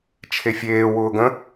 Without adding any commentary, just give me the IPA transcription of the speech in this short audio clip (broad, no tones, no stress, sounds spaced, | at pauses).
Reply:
t͡ʃʰ e fʲ eː w ʊː ɡ ə̃